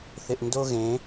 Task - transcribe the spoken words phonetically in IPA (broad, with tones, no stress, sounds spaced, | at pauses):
θ ɪ˨ ʔ n d o˦ ɣ ẽ˨˦